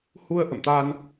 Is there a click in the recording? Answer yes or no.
no